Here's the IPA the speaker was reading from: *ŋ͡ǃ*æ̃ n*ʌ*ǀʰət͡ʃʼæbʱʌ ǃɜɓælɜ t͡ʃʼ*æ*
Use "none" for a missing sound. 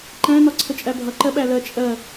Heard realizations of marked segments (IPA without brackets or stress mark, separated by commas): ǃ, ɒ, ɜ